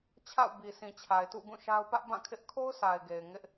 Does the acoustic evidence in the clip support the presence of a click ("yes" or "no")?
no